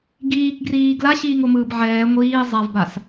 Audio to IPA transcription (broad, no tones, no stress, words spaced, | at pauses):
ɡiːkɡriː ɡlaɕiːŋomɯːb ʕɛː ŋʷiː zˤavbas